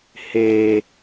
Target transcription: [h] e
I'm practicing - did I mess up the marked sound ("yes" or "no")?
no